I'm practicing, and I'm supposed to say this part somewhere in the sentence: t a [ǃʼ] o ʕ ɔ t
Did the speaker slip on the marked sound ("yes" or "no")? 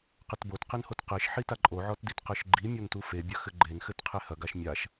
no